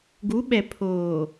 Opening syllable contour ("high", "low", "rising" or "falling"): rising